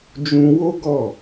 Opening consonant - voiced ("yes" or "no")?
yes